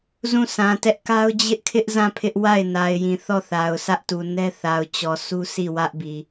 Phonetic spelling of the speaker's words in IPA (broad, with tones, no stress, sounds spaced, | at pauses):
z ũ˦˨ s ã˨ t ɛ˦ ʔ k a˦ ʊ̯ d͡ʑ ɪ˦ ʔ kʰ ɪ˦ ʔ z ã˦˨ pʰ ɪ˦ ʔ w a˦˨ ɪ̯ n a˨ ɪ̯ j ĩ˨ θ ɔ˦˨ θ a˨ ʊ̯ s ä˦ ʔ t u˨ n ɛ˦ θ a˨ ʊ̯ t͡ɕ ɔ˨ sʰ u˦ s i˦˨ w ä˦ ʔ b i˨